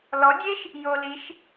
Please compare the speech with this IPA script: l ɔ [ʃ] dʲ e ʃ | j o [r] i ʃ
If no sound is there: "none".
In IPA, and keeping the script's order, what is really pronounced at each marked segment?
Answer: none, l

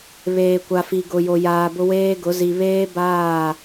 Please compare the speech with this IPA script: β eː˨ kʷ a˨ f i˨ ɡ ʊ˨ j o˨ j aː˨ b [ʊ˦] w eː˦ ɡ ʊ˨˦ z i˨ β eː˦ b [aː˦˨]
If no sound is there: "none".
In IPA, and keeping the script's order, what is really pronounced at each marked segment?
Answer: ʊ˦, aː˦˨

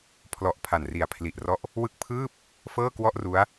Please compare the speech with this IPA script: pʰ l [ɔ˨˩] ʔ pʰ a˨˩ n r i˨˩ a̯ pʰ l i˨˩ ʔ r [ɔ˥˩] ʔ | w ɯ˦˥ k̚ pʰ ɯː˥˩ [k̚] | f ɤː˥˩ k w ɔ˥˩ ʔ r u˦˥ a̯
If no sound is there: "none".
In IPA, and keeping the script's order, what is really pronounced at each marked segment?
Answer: ɔ˨˩, ɔ˥˩, p̚

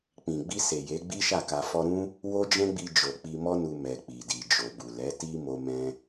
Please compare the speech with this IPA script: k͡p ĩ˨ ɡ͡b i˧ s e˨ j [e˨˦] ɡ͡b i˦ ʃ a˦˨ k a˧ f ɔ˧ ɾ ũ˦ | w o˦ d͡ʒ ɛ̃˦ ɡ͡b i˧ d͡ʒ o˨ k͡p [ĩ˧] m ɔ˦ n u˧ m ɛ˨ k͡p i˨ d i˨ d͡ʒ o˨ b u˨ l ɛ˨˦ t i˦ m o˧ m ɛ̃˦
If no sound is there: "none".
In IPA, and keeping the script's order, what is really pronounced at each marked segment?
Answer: e˨˦, i˧

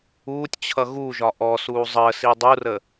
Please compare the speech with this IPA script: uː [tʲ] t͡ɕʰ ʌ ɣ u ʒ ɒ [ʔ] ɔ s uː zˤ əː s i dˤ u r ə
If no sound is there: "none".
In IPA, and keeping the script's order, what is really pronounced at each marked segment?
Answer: tʲ, ʔ

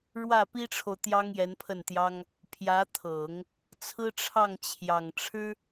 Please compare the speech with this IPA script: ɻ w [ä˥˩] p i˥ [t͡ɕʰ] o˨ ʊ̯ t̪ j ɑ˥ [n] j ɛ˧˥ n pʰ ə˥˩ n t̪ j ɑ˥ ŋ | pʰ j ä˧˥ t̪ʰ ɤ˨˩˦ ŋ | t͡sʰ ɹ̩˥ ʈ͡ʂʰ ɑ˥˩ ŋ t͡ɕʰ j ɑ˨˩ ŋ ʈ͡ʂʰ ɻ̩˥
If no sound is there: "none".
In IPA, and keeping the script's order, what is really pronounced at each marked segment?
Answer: ä˥˩, ʈ͡ʂʰ, ŋ

